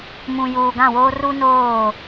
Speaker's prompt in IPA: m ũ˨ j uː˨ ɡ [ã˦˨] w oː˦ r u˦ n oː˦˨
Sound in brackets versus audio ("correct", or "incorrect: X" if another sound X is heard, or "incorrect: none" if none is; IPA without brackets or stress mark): correct